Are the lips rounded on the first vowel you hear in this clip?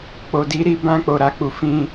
yes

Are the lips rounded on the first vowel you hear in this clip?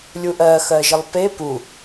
yes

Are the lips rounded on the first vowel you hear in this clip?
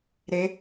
no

